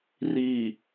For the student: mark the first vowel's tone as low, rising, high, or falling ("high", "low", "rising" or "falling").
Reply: low